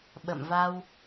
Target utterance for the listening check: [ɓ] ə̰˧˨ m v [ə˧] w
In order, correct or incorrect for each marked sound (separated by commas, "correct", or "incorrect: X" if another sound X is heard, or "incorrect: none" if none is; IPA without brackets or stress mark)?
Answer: correct, incorrect: a˧